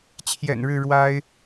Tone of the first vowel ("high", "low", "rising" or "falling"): low